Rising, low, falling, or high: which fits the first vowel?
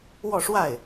falling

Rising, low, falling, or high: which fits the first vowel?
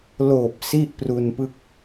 low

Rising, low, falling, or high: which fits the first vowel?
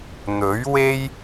rising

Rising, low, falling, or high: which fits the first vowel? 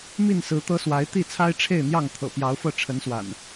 falling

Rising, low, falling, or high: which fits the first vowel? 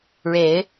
rising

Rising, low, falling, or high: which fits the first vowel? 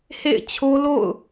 falling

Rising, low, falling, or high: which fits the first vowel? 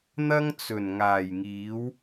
high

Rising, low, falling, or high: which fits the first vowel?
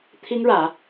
high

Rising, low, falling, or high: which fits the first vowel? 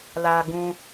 low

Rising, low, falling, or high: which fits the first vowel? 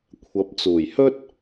rising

